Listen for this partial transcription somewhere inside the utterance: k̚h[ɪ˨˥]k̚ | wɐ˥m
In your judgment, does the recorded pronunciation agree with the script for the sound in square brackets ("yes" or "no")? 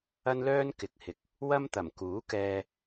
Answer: yes